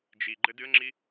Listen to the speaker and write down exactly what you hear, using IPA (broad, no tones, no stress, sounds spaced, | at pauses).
d͡ʒ i ɡ͡ǃ ɘ d ɨ ə̯ ŋ͡ǁ i